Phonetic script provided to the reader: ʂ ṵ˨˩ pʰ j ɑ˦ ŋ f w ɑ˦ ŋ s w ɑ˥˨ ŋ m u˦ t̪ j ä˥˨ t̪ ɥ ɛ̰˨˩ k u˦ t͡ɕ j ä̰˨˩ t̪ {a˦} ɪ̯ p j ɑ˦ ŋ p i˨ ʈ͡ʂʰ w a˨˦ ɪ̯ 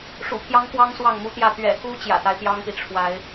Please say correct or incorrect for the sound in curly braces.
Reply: correct